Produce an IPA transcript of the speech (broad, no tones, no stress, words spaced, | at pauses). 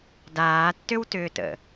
daːtːʏwtʏːtə̰